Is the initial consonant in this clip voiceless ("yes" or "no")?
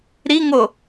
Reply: no